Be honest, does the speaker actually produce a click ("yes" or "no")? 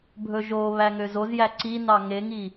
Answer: yes